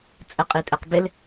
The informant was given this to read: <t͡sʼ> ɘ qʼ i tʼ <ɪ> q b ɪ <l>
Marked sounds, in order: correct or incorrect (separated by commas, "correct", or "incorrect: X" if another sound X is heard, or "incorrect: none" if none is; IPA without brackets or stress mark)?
correct, incorrect: ɛ, correct